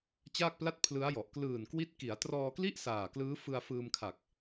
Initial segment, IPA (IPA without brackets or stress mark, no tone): t͡ɕ